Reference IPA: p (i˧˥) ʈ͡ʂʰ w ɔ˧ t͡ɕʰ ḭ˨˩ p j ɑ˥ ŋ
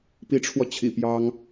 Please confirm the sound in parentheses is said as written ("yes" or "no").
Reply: yes